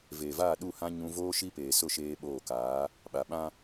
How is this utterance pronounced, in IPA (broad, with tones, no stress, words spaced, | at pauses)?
veː˨vaː˦˨ ɗu˦˨ hã˦ ɲũ˦ voː˦ʃi˦peː˨sʊ˦˨ ʃeː˦ɓoː˦˨ kaː˨˦ | ɓa˨ɓã˦